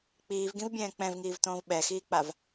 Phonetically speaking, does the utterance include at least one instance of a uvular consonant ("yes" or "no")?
no